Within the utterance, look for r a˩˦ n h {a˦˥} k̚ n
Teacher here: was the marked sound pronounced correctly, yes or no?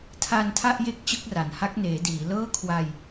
yes